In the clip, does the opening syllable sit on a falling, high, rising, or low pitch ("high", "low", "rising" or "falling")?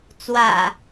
low